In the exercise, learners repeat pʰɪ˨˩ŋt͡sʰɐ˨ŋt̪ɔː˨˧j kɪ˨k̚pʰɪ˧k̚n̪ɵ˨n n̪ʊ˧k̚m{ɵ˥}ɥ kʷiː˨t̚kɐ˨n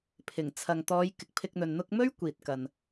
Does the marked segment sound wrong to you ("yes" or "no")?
no